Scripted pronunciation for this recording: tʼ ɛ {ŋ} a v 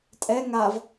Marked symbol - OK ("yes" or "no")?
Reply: yes